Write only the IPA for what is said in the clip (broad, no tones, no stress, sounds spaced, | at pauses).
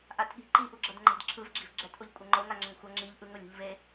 ʔ a t ɠ i̤ ǃ i ʔ u ɡ͡ǁ ʌ d ŋ͡ǃ e̤ d ǁʰ ɯ v ɡ͡ǁ i̤ v ɡ͡ǁ ɛ t ʔ o ʎ kʷʼ ɛ ŋ͡ǃ o ŋ a ŋ͡ǁ ʌ ŋ xʷ ʌ ŋ͡ǁ i ʎ ʔ ɯ ŋ o lʲ ṳ ʎ v e